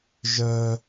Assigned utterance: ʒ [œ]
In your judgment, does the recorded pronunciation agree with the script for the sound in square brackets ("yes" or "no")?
yes